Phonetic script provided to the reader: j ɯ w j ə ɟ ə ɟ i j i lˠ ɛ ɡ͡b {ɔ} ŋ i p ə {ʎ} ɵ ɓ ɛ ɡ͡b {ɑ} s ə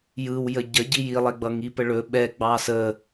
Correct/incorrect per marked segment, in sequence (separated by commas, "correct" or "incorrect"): incorrect, incorrect, correct